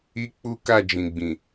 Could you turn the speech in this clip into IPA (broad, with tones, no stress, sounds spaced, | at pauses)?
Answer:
i˦ k͡p u˦ k a˦˨ d͡ʒ ĩ˨ ɡ͡b ĩ˨